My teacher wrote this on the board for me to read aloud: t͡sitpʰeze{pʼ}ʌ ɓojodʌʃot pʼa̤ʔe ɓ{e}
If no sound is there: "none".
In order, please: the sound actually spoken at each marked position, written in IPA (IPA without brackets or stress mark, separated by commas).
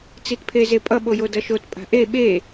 pʼ, e